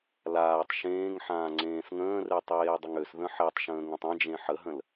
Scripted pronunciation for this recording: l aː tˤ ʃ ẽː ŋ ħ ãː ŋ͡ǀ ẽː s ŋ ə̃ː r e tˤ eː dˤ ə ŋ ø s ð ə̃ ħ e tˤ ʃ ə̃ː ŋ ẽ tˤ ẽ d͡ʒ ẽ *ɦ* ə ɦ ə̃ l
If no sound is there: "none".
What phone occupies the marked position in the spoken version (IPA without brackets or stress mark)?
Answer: ħ